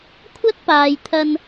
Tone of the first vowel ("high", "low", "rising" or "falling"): high